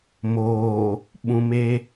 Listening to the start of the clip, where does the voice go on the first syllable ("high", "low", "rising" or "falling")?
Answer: low